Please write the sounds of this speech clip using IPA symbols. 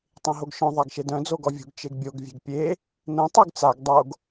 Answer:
tˤẽɦoɡʃœ̃ ðˤaɡʃedœ̃ d͡zoɡɔvʲṳɡ t͡ʃeɡbʲoɡ vʲɛ̤ɡpʲe | nɛ̃ tˤyɡt͡saɡ dˤoɡ

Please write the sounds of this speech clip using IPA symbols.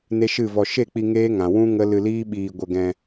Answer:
ne˦ʃɨ˦˨vɔ˧ ʃe˦˨k͡pi˧ ŋeː˦ŋã˨ wũ˦ ŋə˦ lɨ˧liː˦ɓiː˧ ɡʷə˧ɡɛ̃˧

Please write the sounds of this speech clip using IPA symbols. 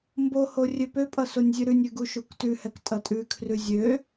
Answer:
mboho rʲøpøpʼʌ sonʲzʲʉɾʉnʲʉ ɡuʃuktʉhɛk tʼʌtʼʉkʰrʉ zʲø

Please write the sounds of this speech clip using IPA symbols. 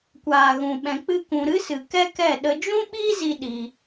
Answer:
kʷaː˨ɣũ˨ ɓɛ̃˧k͡pɨ˦kũ˧ ɾɨ˦sɨ˨ kɛ˦kɛ˦˨ ɗə˧d͡ʒũ˦ɓiː˦ zi˦ɗi˧

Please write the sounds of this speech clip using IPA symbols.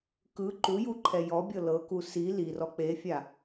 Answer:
kɯ ǃujuǃʰɛ jɔbʲɤ lɤku si lirɔ k͡pefʲa

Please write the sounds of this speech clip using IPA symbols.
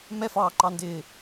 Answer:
mɛfɑːǃɑndɪː

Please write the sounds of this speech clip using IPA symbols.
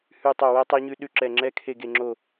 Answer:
hʉ˦˨tˤo˦˨wɛ˦˥ tˤe˦˥ɲʉ˦˥ ɗʉ˦˨ǁɛ˦˨ ŋ͡ǁɛ˦˥kʰe˦˨ɡe˦˨ŋ͡ǁo˦˨

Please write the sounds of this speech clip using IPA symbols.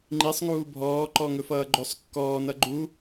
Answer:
ŋ͡ǃisˤŋuː bʱɔː ǃɔŋɵfʌːɡ͡ǃɵsˤ kːɔːnʌ ɡ͡ǃu

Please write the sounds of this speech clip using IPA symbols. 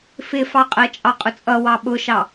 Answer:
fɪfɑ qʼɜt͡ʃʼɑqʼʊt͡sʼʌ wɑɓʊʃɑ

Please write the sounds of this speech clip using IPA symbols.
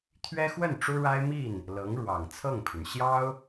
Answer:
t̪ʰɥɛ˥xwə˥˩n ʈ͡ʂu˥ɻa˥ɪ̯mi˥˩n | lɤ˧˥ŋɻwɑ˨˩ŋt͡sʰɤ˥˩ŋpʰy˩n ɕjɑ˥ʊ̯

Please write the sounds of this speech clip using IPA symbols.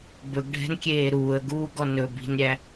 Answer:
bɵɡɖʱɛ̤nkʲeː ɾuːə̯ɡuːɡɔ nɵ bi̤nɾʲæ

